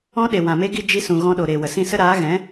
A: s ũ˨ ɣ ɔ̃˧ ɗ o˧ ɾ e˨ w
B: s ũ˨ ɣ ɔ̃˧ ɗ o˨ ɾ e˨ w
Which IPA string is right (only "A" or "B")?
B